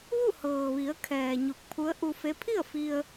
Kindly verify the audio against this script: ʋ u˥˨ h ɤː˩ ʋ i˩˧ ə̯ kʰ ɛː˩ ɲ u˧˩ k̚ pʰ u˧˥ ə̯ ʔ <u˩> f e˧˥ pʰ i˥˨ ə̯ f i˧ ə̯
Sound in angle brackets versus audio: incorrect: u˧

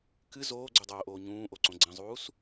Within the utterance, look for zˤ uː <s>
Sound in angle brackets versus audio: correct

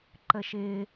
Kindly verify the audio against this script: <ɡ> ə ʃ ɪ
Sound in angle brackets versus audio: incorrect: ǃ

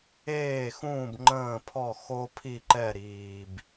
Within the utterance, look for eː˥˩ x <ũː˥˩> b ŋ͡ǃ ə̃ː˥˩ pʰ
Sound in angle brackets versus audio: correct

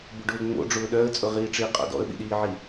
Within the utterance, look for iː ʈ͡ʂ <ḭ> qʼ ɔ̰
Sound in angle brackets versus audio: incorrect: i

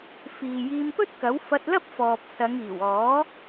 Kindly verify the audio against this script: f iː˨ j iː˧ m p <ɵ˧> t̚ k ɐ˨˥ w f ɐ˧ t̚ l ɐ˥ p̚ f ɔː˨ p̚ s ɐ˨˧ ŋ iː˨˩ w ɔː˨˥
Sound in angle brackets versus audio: incorrect: ɵ˥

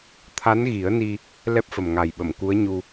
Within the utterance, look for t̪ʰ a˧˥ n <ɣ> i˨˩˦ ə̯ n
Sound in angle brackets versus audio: correct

